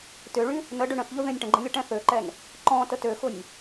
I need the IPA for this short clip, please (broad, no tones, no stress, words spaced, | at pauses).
tʏɭy | nəɖʏ ɳə̃θʎʊ ðẽnʲʈə̃ɡ͡ǃə̃ lʲʊʈɛ̃θøǃɛn | ǃɔ̃ tətøxʊnʲ